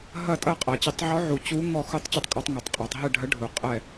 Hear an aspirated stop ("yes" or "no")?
no